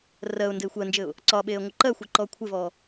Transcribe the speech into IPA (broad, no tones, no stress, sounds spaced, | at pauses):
r ɜ ʊ̯ n d ɘ ɪ̯ xʷ ɜ n d͡ʒ ɘ ʊ̯ | ǀ ɒ ɓ e ə̯ ŋʷ ɪ ǃ ɜ xʷ ɘ ǃ ɔ kʷʰ ɪ v ɔ